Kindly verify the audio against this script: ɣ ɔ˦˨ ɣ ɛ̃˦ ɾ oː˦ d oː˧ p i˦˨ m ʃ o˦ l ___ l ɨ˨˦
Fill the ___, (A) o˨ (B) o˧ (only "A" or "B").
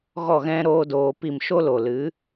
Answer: A